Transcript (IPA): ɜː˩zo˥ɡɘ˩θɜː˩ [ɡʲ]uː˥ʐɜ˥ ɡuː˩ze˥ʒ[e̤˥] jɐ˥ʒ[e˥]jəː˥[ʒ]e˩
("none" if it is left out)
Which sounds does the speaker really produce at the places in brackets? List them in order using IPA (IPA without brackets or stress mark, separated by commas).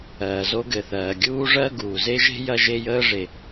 ɡʲ, e̤˥, e˥, ʐ